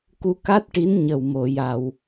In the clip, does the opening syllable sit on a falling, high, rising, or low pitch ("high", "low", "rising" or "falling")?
rising